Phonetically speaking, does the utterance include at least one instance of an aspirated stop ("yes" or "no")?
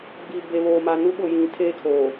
yes